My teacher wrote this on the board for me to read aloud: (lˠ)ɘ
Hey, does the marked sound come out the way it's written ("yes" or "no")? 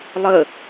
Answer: yes